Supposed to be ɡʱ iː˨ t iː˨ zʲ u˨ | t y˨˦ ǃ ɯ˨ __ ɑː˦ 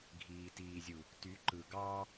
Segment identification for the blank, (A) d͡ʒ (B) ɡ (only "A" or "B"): B